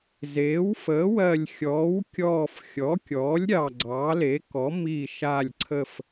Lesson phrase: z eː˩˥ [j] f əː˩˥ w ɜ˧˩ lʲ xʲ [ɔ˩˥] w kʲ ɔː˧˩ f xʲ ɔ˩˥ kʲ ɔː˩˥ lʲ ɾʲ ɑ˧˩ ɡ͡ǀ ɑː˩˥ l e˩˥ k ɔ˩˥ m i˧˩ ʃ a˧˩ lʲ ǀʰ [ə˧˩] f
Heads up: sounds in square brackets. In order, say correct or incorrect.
incorrect, incorrect, correct

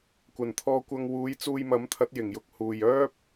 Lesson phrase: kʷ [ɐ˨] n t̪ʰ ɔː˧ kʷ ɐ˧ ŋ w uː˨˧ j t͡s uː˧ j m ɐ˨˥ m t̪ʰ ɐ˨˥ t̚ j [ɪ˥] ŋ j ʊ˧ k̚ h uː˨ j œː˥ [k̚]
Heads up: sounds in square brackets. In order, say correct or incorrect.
incorrect, incorrect, incorrect

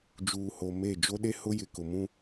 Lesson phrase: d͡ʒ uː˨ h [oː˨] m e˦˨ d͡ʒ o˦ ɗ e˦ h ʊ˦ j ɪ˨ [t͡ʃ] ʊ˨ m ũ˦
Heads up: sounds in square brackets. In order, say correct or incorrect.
incorrect, incorrect

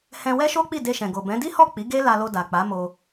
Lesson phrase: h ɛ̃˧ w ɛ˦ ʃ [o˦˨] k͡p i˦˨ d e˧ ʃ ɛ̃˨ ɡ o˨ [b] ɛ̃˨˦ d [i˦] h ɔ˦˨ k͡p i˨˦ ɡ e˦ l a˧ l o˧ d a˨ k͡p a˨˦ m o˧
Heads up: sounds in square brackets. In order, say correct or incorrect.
incorrect, correct, correct

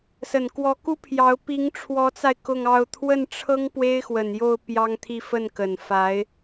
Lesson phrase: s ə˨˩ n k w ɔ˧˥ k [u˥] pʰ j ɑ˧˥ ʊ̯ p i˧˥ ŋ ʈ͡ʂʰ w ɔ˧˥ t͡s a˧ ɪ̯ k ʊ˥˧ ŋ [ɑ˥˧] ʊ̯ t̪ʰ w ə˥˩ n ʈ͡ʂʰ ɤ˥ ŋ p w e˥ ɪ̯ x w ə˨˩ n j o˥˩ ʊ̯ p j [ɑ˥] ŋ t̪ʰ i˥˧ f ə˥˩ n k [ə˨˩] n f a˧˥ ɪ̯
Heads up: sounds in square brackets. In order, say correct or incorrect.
correct, correct, correct, correct

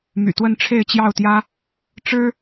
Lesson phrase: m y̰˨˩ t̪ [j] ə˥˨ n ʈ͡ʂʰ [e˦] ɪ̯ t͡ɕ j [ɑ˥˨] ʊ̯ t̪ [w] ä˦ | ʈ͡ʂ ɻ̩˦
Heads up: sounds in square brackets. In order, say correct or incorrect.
incorrect, incorrect, correct, incorrect

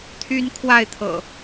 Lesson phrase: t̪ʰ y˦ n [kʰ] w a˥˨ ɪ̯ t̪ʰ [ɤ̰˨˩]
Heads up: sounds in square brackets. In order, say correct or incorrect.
correct, correct

